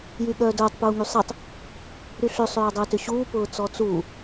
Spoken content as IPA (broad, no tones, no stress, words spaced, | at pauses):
jyɠœːdʊːtˤ puːŋysˤitˤ | ɾyɬø sˤøːdˤʊːtʏɕuː pʊːt͡sɔt͡suː